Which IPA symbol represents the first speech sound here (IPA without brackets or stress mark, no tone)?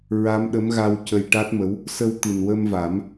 ɹ